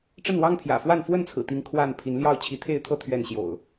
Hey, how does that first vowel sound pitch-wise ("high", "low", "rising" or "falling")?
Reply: falling